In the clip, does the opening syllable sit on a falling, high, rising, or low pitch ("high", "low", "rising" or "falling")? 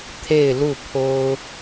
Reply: falling